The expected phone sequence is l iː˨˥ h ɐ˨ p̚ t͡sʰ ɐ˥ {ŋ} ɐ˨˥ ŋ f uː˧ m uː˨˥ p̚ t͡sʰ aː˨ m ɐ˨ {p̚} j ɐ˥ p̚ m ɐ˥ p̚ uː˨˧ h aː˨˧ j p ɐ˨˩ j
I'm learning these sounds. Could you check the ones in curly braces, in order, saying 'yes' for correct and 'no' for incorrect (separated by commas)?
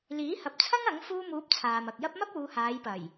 yes, no